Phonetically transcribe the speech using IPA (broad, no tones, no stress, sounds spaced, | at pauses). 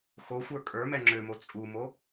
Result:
x o xʷ ə˞ kʼ ə˞ m ɛ ŋ͡ǁ ø m o t͡sʼ u m o